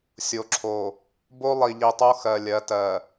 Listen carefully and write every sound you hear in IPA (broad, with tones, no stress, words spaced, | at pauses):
sʲo˨ǁʰo˨ | bo˦lˠi˨ʎi˨ tˤo˦xɜ˨lʲɜ˨˦ tɜ˨